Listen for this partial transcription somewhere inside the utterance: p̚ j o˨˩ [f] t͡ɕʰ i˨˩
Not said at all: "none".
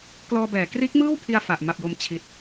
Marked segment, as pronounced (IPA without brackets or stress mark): m